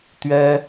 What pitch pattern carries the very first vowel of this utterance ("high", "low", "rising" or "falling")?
high